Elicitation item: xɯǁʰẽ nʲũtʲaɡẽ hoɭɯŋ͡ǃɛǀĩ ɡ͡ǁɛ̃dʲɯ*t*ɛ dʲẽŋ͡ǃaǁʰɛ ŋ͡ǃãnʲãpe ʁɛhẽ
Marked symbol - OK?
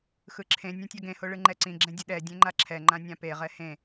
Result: no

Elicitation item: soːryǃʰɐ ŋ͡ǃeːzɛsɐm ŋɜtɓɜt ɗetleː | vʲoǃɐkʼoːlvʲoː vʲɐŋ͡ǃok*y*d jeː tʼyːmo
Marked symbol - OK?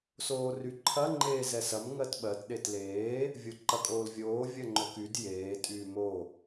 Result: yes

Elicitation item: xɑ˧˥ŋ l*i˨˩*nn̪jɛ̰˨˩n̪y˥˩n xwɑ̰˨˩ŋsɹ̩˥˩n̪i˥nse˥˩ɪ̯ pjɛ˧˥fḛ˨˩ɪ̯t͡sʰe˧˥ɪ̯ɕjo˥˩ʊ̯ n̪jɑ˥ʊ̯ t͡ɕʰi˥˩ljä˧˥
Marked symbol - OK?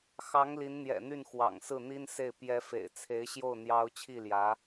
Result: no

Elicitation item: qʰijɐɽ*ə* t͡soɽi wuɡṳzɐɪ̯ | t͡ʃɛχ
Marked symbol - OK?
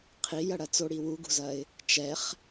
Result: no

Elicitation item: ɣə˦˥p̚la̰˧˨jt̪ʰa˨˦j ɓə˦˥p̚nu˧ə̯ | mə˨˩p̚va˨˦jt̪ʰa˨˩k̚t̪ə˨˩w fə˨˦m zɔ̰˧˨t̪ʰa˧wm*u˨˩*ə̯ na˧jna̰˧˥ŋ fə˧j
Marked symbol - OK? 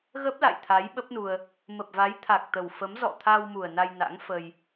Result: yes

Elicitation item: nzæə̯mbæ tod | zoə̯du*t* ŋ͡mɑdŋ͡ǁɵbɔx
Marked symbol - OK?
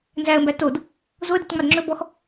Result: yes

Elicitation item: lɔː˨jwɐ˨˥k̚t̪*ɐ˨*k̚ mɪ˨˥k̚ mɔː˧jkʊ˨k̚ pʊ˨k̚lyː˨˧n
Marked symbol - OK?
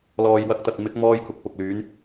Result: yes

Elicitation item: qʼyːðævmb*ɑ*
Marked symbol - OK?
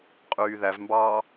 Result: no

